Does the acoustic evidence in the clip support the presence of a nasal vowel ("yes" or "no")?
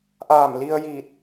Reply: no